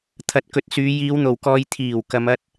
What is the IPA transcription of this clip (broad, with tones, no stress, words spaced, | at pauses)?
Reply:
t̪ʰɐ˨˥t̚kɵ˨t̚syː˨˧ jiː˨˧wn̪o˨˩wkɔː˨j t̪ʰiː˨˩w kɐ˨˧mɐ˥t̚